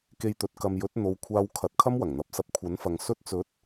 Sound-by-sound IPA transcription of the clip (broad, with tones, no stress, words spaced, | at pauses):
ke˧jt̪ɵ˨˥t̚ kɐ˨mjɵ˨˥t̚ n̪o˨wkʷʰaː˧w kʰɐ˧t̚ kʰɐ˥mwɐ˨˩ŋn̪ɐ˨˥p̚sɐ˧p̚ kʷʰɐ˨˥nfɐ˨ŋ sɵ˧t̚t͡sɵ˨˥t̚